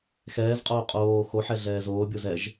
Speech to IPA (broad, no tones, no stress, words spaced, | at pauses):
xɛːzqʼoː qʼoː xoħɛ ɮɛːzoːbʲoz ɛʒ